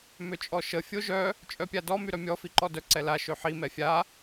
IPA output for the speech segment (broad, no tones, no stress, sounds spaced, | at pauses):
m ø t͡ʃʼ ɔ ʃ ə fʲ o ʒ œ | t͡ʃʼ œ pʲ a d ɔ m y ɾ œ mʲ ɔ f i ǃ ɔ d œ ǀ ɛ l a ʃ ø ħ i m ɛ fʲ a